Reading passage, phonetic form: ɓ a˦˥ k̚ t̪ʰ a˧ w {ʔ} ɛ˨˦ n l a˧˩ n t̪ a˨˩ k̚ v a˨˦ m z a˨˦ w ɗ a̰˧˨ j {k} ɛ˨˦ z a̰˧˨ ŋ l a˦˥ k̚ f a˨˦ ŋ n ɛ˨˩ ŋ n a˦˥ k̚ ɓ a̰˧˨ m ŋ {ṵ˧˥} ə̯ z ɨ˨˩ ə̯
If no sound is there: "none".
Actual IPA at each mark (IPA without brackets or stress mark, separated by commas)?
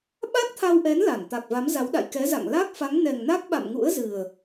ʔ, k, ṵ˧˥